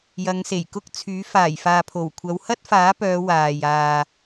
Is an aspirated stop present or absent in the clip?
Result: present